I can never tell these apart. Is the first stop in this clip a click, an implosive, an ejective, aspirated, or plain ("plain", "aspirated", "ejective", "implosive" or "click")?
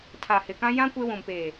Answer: aspirated